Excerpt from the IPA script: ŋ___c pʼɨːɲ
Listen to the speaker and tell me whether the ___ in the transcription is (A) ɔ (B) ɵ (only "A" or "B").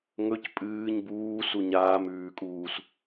B